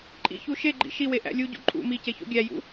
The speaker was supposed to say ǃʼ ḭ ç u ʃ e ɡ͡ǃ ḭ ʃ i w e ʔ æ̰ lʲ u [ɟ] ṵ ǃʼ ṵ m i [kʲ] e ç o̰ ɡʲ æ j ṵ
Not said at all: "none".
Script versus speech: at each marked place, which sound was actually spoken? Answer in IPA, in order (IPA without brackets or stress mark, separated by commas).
ɟ, c